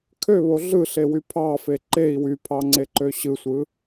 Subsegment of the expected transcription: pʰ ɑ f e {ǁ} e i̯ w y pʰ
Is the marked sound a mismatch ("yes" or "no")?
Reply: yes